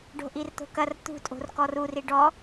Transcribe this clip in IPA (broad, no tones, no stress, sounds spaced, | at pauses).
ɖ o̤ ʔ i r t̪ o̤ k ɐ r t̪ ṳ tʼ o̤ r k ɔ r u r i ɖ ɔ